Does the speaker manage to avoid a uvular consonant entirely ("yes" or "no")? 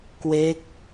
yes